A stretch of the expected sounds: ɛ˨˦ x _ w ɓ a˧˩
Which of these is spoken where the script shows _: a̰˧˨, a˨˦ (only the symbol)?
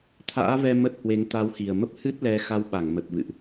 a˨˦